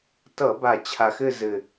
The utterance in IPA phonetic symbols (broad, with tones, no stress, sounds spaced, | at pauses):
t ʌ˧˩˧ b a˨˩ t͡ɕʰ a˨˩ x ɘ˦˨ z ɘ˨˩